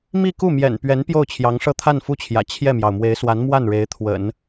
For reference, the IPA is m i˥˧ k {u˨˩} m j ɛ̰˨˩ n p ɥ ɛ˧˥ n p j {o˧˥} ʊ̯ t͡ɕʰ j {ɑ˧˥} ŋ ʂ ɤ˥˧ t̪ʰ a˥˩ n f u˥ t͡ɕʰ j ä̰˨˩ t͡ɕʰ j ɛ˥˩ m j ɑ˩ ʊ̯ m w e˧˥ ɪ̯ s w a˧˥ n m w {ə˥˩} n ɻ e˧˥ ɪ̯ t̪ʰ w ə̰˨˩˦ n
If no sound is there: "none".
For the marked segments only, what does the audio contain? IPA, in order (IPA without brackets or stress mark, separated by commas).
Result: u˥˩, o˥˩, ɑ˧˥, a˥˩